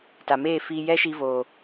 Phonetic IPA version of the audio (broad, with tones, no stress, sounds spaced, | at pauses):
t a˨ m eː˦˨ f iː˧ j ɛ˦ ʃ i˧ v oː˨